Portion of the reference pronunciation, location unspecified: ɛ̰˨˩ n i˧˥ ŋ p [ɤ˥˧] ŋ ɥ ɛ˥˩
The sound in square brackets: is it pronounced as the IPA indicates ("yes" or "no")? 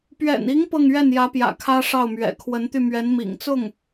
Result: yes